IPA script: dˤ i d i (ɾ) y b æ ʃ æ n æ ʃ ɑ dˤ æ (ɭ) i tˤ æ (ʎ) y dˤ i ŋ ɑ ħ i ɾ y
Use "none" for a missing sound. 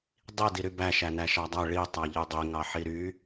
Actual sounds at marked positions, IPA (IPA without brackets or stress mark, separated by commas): ɾ, ɭ, ʎ